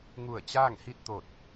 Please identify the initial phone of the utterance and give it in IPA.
ŋ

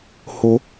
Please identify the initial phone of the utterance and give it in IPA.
h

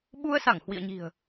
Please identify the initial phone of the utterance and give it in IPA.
ɓ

